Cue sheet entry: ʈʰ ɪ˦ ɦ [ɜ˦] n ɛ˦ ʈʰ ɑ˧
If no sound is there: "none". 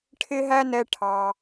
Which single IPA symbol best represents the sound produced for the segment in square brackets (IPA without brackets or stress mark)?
æ˦